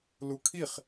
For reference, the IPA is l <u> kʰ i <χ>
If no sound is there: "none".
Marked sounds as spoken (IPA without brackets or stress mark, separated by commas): u, χ